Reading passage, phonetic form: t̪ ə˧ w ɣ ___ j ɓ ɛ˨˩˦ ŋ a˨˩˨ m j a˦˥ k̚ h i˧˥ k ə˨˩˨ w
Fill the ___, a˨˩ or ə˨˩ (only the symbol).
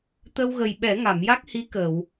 ə˨˩